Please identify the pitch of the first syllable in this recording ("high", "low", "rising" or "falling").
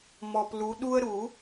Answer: low